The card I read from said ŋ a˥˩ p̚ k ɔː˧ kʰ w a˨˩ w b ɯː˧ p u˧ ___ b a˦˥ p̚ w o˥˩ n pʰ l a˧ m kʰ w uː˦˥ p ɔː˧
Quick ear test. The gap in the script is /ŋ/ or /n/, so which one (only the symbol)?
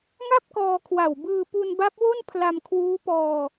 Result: n